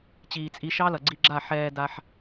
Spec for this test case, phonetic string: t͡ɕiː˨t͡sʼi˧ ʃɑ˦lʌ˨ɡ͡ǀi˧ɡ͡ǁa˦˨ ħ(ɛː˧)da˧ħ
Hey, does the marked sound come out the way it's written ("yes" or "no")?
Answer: yes